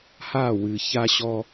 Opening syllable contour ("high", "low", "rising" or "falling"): falling